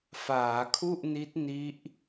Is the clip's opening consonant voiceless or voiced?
voiceless